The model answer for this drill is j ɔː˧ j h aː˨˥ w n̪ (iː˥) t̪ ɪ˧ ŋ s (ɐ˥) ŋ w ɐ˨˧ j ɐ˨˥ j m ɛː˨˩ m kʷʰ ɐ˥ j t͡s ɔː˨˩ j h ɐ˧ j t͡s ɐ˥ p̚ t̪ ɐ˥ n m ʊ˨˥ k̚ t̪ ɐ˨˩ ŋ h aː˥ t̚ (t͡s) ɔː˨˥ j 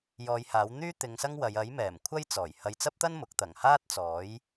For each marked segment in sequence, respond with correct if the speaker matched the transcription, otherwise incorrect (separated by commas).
incorrect, correct, correct